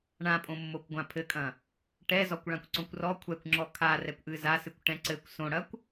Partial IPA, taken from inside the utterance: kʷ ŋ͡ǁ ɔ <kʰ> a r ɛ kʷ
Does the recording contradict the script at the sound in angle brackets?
no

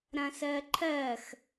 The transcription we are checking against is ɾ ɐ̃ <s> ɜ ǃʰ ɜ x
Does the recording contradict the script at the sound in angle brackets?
no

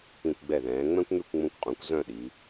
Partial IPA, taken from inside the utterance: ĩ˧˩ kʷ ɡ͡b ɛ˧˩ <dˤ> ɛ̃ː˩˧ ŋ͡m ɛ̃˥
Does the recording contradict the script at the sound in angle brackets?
yes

